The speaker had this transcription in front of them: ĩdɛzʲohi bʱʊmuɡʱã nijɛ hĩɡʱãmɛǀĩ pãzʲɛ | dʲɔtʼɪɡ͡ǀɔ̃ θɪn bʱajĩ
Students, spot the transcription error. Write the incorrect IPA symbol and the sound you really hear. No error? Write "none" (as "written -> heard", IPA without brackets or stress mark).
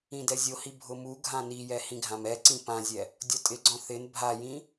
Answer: none